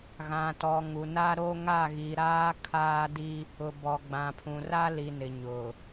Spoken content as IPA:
ɣ ã˨ t ɔ˨ ŋ u˨ n a˦ ɾ o˦ ŋ a˦˨ ɣ i˨ ɾ aː˦ kʰ aː˦ d i˦ | ʊ˨ b ɔ˨ ɡ͡b ã˨ pʰ ũ˨ r a˦ l i˨ n ɪ˨ ɲ ʊ˨

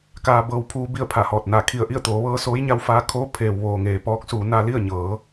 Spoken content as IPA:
k aː˧ b ɤː˧ w pʰ uː˧ b i˥˨ ə̯ pʰ a˧˩ h ɔː˧˩ t̚ n aː˧˩ kʰ i˧˩ ə̯ ʔ i˥˨ ə̯ t̪ oː˩˧ ʋ ɤː˧ s oː˧˥ j ɲ a˧ w f aː˧ kʰ oː˧˥ pʰ eː˩ w ʋ oː˩ ŋ eː˩ p ɔː˧˥ k̚ s uː˩˧ n a˧ l i˥˨ ə̯ ɲ ɤː˩˧

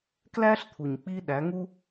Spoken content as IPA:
k l æ˦ ɬ t̪ʰ u˨ ɲ k͡p i˧ ɗ æ˨˦ ŋ u˦

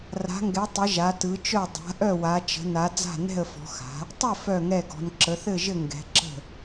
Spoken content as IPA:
r a̤˨˦ ŋ ɡ ɛ˨˦ tˤ ɘ˨˦ ʒ a˨˦ t ɯ˨˦ t͡ʃ œ˥˨ dˤ a̤˨˦ ʔ œ˥˨ w a˨˦ t͡ʃ ə̤˨˦ n a˨˦ d͡z a̤˥˨ n ɛ̤˥˨ ə̯ f ɔ̤˨˦ x a̤˨˦ | tˤ ɘ˥˨ f œ˥˨ ŋ ɛ˥˨ ɡ ɔ̤˨˦ n ǁ ə˨˦ θ ɘ˥˨ ʒ ɘ˥˨ ŋ ɡ ɛ̤˨˦ ǁ ə̤˥˨

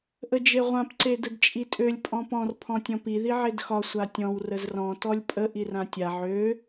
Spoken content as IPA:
ʔ ə d͡ʒ e ʁʷ ã p ǀ e d ə d t͡ʃʼ i tʼ ø lʲ pʼ ɔ̃ p ɔ̃ r pʰ ɔ̃ tʲ ɔ̃ p i ð i ʕ e d x ɒ sʷ a tʲ ɔ̃ w r ə z r ɔ̃ t ɔ lʲ pʼ ə ʔ i r ã tʲ a ʕ ø

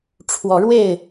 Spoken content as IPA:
ʈ͡ʂʰ w ɔ˨˦ ɻ w e˥˨ ɪ̯

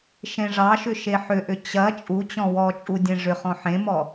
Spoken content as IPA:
ʃ ẽ ʐ ɑ ʃ ʏ ʃ e ħ ʏ ʔ ʏ t͡ɕ ɐ t͡ʃʼ u t͡ɕ ɔ̃ w ɔ t͡ʃʼ u dʲ ẽ ʐ ʏ χ ɔ̃ ħ ẽ m ɔ

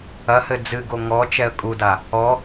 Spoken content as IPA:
ɐ h ɘ d͡z ɨ ɡ o ŋ ɔ t͡ʃ ɛ ə̯ kʼ u d a | ɔ

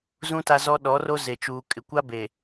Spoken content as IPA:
z ũ˦ t a˦ z ɔ˦ ɗ ɔ˨˦ r o˦ z e˨ t͡ʃ uː˨ kʼ ɪ˨ kʷ a˦ b e˨

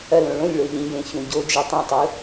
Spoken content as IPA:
ɐ l õ ɭ õ lʲ ɭ o ʎ ĩ j ẽ ç ũ ɟ o d͡ʒ e tˤ ũ tˤ u

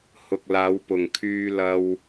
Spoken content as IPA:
h ʊ˨ k̚ l aː˨˧ w p ʊ˨˩ ŋ kʰ yː˧ l ɐ˧ w

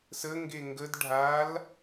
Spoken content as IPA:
s ə ŋ ɡ e ŋ ɡ ə d ɖʱ a l

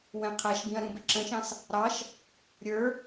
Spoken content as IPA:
w ɛ̃ qʰ æ ʃ b ĩ ɐ̯ ɾ ũ b ɪ ǁ ə̃ ʃ ɑ̃ s | ɾ ɑ ʃ | ɾʲ ə˞

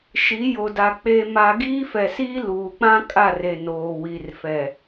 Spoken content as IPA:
ʃ i˨˦ j o˨ d a˨ k͡p e˦ m a˦ ɡ iː˦ f ɛ˨ s iː˦ l uː˨ k͡p ã˦ kʼ a˦˨ r e˨ n oː˨ w i˨ r f ɛ˨

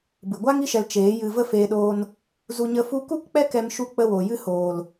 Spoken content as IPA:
b ɨ˨ ɡʷ a˦ ŋ i˦ ʃ ɛ˧ l t͡ʃ eː˨˦ j ɨ˧ v ə˦ f eː˧ ɗ oː˧ n | z u˧ ɲ ə˧ f u˧ k u˦ k k͡p ɛ˦ k ɛ˧ m ʃ u˧ k͡p ə˧ w oː˨ j ɨ˧ h oː˨ l

